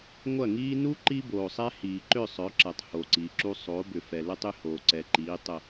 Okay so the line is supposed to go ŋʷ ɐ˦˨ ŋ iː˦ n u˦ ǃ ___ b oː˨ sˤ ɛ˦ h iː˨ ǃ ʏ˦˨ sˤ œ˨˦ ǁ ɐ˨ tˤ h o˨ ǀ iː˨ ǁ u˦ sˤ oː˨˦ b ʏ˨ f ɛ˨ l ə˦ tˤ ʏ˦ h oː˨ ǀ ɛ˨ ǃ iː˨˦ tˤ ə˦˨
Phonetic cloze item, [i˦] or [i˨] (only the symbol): i˦